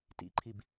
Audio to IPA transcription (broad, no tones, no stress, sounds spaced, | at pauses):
t ḭ ǃʰ i b